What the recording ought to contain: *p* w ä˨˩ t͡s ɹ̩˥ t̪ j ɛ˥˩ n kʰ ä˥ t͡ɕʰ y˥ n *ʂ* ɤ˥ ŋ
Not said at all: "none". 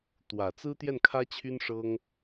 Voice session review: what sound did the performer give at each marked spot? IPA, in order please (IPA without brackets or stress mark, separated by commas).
t̪, ʂ